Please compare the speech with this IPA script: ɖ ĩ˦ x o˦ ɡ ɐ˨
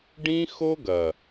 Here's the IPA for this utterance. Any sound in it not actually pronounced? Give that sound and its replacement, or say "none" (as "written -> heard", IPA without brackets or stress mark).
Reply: none